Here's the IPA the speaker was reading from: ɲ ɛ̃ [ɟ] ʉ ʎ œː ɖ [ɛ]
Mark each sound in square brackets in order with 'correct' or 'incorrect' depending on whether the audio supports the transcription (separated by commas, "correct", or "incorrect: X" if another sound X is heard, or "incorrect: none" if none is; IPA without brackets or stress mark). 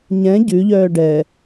correct, correct